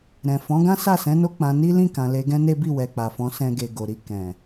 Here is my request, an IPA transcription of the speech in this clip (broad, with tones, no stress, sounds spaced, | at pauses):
ɾ ɛ̃˨ f ɔ̃˨˦ ɡ ã˦ s a˦˨ s ɛ̃˨˦ n o˦ k͡p ã˧ n i˦ l ĩ˦˨ k ã˨ l e˧ ɡ ɛ̃˦ n e˦ b i˦˨ w ɛ˨ k͡p a˨ f ɔ̃˨˦ s ɛ̃˧ ɡ e˨ ɡ o˨ ɾ i˧ k ɛ̃˨